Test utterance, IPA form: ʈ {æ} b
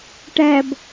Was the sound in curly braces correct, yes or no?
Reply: yes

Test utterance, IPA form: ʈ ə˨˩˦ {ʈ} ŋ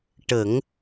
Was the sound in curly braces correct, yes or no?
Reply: no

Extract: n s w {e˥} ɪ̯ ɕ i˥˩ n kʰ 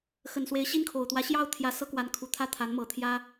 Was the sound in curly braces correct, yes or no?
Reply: no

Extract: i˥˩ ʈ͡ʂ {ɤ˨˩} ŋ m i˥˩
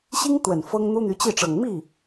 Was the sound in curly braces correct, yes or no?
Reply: yes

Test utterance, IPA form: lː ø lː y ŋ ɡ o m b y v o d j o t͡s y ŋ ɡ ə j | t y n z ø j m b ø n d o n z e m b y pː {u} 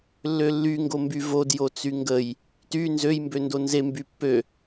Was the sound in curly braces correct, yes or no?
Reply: no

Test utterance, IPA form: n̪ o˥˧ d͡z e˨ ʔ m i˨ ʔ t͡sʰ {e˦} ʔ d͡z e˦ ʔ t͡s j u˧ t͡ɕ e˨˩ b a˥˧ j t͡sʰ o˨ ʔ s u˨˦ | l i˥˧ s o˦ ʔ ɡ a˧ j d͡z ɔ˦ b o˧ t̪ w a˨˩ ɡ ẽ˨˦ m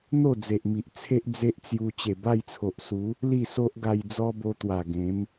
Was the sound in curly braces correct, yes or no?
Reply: yes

